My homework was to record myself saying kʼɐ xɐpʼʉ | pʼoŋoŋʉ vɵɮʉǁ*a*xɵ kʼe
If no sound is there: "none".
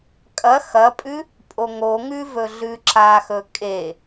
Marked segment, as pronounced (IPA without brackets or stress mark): a